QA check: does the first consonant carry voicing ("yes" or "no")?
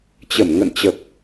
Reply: no